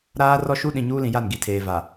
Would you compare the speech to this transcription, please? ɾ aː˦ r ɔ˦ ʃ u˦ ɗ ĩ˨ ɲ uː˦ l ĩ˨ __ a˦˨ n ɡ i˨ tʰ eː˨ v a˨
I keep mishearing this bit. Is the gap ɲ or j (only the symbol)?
j